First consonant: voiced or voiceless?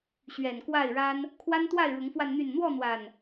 voiceless